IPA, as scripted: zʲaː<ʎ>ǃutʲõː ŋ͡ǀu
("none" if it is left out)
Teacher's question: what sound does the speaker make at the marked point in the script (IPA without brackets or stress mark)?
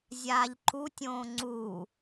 ʎ